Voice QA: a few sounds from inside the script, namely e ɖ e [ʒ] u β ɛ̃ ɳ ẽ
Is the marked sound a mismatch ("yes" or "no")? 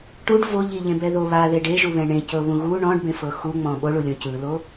no